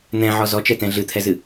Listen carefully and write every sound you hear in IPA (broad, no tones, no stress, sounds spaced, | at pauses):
n̪ ɛ̃ ʕ ɔ z ɔ t͡ʃ ɛ t ɛ̃ ɮ ɨ t̪ʰ ɛ z ɨ